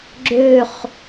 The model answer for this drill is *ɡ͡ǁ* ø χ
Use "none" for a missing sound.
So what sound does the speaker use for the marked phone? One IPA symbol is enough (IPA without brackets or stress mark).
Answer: ɡ͡ǁ